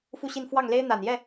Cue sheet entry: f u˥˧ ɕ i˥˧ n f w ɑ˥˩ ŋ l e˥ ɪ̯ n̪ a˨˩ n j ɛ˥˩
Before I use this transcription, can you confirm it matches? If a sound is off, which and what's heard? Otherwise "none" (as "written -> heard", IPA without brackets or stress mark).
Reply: none